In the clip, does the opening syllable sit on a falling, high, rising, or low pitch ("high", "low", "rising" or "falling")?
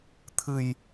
low